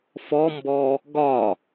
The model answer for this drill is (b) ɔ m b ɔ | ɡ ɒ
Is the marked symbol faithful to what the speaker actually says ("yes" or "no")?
no